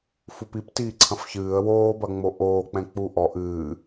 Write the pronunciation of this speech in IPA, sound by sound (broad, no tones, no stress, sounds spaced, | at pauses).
f u p i p t iː ǀʰ ɐ̃ f ç ɨː ə̯ w oː b ɐ ŋ͡m o ʔ oː k͡p ɛ̃ k͡p u ʔ ɔ ʔ ɨː